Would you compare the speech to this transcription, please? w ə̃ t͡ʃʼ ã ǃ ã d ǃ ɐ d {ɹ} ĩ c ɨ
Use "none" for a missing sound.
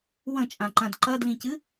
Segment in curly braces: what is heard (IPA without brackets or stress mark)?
l